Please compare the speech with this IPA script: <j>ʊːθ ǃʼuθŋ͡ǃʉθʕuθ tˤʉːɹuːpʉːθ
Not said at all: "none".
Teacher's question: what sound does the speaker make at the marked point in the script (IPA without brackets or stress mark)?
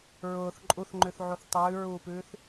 ɹ